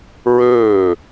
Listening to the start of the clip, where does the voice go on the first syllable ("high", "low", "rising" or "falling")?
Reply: falling